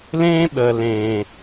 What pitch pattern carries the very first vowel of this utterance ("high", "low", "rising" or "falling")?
high